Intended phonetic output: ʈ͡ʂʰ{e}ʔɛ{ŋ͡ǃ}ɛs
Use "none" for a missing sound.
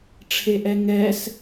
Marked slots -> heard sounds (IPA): e, ŋ

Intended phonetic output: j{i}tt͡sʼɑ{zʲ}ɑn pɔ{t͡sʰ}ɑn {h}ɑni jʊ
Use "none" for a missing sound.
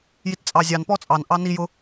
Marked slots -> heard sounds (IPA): i, zʲ, t͡sʼ, ʔ

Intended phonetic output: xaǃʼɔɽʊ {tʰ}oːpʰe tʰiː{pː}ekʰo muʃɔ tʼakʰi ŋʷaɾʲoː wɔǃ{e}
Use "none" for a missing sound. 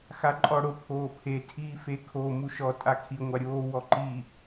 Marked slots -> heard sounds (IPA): pʰ, f, i

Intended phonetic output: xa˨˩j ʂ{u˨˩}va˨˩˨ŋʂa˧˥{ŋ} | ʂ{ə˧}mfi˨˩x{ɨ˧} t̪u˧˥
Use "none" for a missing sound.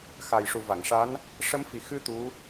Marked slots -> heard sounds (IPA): u˨˩, n, ə˧˥, ɨ˧

